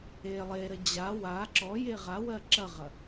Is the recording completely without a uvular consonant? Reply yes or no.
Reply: no